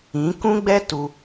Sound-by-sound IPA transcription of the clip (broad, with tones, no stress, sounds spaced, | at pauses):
ĩ˨˦ k ũ˦ ɡ͡b ɛ˦ t u˧